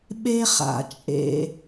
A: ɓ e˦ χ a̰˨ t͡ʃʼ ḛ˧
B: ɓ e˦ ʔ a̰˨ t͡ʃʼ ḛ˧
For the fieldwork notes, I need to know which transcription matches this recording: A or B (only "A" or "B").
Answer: A